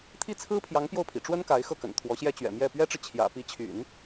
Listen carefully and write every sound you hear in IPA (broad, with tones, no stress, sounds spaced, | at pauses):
t̪ʰ i˥˩ t͡sʰ ɹ̩˥ pʰ j ɑ˧˥ ŋ p j o˥˩ ʊ̯ pʰ ḭ˨˩ ʈ͡ʂ w ə˥ n k a˧˥ ɪ̯ x ɤ˥˩ k ə̰˨˩ n t̪ʰ w ɔ˧˥ ɕ j ɛ˥ t͡ɕ ɥ ɛ̰˨˩ m j ɛ˥˩ p ɥ ɛ˥ ʈ͡ʂ ɻ̩˨ t͡ɕʰ j ä̰˨˩ p i˧˥ t͡ɕʰ y̰˨˩˦ n